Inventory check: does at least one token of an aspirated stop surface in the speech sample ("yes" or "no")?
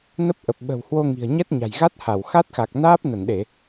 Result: no